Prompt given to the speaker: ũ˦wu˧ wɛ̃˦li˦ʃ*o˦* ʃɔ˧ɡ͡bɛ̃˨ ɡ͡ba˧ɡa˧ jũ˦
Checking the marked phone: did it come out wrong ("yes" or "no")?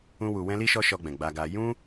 yes